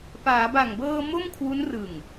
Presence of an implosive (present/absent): absent